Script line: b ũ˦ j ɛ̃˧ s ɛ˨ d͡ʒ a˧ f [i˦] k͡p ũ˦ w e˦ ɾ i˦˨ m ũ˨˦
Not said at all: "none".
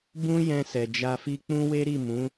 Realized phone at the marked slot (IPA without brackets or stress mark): i˦